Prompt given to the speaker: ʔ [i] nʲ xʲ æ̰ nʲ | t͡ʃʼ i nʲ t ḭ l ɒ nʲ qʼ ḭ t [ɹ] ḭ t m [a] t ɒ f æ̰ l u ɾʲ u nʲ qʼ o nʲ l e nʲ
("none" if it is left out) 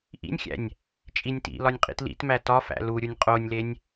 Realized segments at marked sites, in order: ḭ, l, æ

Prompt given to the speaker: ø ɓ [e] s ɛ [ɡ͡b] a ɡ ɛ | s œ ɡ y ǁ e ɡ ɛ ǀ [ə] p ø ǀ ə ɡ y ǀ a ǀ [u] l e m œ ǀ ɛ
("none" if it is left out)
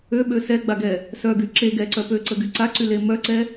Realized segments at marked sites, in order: ø, ɡ͡b, œ, y

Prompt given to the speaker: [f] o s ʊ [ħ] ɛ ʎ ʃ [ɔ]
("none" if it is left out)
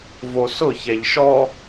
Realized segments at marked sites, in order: v, ç, ɔ

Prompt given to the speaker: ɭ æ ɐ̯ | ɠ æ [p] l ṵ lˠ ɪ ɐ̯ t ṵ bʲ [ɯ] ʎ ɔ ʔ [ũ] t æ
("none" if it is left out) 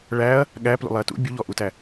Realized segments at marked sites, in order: p, u, u

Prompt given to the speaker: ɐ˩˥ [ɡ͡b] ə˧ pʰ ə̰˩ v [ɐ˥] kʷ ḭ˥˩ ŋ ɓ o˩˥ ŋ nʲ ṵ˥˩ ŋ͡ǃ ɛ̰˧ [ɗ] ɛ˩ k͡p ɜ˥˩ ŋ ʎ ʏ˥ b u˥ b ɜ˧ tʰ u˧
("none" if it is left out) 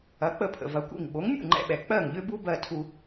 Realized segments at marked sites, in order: k͡p, ɐ˩˥, ɓ

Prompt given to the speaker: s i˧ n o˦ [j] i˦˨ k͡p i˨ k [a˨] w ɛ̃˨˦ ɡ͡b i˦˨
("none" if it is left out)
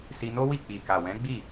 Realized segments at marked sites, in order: w, a˨

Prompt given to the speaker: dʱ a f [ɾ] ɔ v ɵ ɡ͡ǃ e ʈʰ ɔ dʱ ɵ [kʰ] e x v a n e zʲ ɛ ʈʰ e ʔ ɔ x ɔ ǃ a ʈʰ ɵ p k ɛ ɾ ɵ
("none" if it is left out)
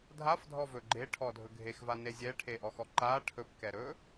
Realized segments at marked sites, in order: dʱ, ɡʱ

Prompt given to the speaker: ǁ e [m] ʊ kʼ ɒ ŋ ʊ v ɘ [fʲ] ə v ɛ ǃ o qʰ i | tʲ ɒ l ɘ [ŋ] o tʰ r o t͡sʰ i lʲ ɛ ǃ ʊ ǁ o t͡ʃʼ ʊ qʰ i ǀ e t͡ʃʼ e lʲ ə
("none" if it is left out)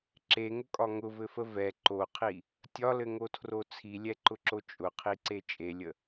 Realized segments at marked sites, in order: ŋ, f, ŋ

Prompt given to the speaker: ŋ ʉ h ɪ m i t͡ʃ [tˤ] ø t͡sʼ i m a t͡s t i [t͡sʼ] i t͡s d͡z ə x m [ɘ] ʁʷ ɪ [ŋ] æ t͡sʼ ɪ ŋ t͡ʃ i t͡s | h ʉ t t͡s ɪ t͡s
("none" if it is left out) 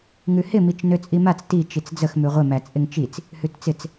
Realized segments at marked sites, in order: n, t͡ʃ, ʉ, m

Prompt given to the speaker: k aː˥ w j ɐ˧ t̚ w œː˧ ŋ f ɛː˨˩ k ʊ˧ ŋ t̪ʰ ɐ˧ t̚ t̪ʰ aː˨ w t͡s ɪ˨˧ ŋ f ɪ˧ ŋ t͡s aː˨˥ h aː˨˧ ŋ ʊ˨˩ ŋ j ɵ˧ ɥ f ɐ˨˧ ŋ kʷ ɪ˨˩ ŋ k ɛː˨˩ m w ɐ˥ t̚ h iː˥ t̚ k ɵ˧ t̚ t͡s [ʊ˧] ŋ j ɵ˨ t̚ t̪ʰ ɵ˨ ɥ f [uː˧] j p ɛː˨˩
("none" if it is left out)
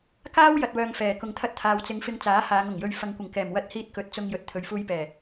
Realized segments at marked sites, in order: ʊ˧, uː˧

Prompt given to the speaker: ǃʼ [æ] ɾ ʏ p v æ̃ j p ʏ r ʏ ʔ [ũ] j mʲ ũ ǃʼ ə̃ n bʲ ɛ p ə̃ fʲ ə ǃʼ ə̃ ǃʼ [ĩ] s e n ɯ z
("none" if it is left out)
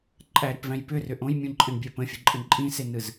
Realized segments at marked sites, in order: æ, õ, ĩ

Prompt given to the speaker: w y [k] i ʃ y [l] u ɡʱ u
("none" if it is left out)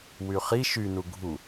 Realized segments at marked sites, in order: χ, n

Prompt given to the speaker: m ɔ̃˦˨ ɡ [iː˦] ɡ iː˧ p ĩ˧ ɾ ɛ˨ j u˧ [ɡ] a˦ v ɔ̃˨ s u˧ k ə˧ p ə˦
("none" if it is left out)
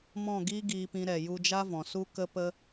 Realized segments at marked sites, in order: iː˦, d͡ʒ

